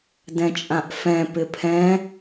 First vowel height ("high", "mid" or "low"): mid